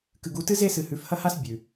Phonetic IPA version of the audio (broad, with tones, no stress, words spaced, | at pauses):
kɨ˨ɡu˨˦tɨ˦ ze˦sɨ˨ hʉ˨fhɐ˦ha˦s bʲʉ˨